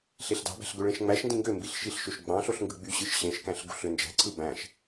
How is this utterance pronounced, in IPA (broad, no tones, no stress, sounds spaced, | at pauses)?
ɬ e ɬ d ɑ̤ b æ̤ ɬ ɡ ø ɭ ẽ ʃ ŋ͡m æ ʃ n d ĩ ŋ ɡ ø m b i ɬ ʃ i ɬ ʃ ø ʃ ɡ͡b ɑ̃ ɬ o ɬ ŋ ɡ ɯ ɡ͡b y ɕ ɯ ʃ ɕ ẽ ʃ k æ̃ ɬ ɡ ṳ ɬ ø n d͡ʒ æ̤ ǀʰ ɯ b æ̃ ʃ